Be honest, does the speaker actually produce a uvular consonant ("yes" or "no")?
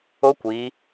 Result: no